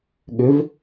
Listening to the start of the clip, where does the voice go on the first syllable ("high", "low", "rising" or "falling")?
rising